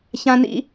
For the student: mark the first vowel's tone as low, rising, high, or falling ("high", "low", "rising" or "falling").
high